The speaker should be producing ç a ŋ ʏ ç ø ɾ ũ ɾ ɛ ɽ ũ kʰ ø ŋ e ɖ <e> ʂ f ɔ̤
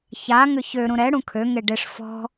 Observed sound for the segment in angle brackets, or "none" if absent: e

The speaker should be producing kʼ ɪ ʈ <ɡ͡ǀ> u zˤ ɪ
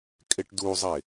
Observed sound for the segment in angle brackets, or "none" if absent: d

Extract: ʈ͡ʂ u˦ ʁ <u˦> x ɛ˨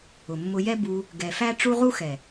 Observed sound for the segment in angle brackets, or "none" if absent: u˦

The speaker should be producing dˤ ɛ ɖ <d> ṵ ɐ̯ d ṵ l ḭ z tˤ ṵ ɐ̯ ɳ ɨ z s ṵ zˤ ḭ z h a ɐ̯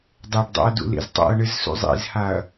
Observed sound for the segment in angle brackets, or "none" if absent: dˤ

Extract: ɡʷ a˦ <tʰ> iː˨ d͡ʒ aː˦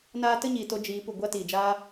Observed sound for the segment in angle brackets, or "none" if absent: t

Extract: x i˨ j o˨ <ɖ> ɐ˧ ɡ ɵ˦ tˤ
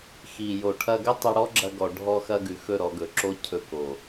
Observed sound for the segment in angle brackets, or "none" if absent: ʈʰ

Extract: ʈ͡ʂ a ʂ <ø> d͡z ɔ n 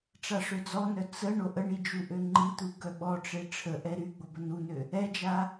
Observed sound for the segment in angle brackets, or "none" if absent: ø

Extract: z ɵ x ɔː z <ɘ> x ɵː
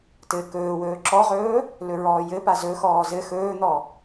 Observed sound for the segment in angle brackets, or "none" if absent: ɘ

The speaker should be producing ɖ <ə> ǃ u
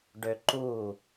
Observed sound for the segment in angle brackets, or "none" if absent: ø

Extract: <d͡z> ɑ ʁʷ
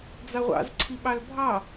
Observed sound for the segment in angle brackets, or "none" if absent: d͡z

